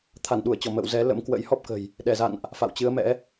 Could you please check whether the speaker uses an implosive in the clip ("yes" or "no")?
yes